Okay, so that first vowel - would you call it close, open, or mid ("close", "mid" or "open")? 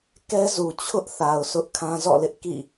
mid